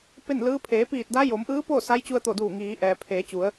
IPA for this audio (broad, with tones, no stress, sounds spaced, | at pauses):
p e˥˨ n l ɯː˧˥ pʰ eː˩˧ p iː˧˩ t̚ d a˧˥ j o˩˧ m ʔ ɯː˧˥ p o˥˨ s a˧˥ j t͡ɕ u˧ ə̯ t̪ o˧˩ d uː˧˩ ŋ iː˩˧ ʔ ɛː˩ pʰ eː˩˧ t͡ɕ u˩˧ ə̯